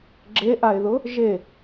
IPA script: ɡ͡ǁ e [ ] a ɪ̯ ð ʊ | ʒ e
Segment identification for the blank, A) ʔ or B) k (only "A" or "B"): A